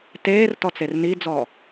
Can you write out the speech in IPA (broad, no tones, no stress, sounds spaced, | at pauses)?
t eː r t ɔ t͡s e r n i d͡z ɔ